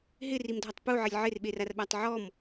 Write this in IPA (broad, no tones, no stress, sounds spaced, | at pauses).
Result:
ɦ ɪ r i m dʱ ɔ tˤ p u ʕ ɪ lʲ ʕ ɪ r ɓ e r a r ɓ a tˤ ʕ ɔ m